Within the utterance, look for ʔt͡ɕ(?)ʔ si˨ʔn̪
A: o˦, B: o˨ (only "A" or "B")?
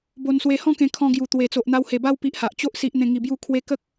A